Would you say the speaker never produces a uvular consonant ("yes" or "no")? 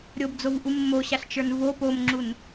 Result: yes